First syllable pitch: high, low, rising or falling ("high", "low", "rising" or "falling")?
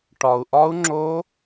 low